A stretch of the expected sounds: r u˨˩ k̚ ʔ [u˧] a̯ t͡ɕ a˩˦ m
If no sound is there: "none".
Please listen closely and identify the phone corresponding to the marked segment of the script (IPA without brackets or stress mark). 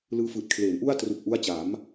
u˦˥